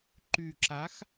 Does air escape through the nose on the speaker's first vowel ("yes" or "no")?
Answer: no